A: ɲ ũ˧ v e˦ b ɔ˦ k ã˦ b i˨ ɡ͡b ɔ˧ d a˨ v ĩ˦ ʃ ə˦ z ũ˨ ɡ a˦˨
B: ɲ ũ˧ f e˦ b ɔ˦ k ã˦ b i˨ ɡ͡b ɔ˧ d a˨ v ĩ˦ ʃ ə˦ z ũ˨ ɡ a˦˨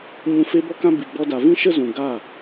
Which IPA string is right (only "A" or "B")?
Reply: B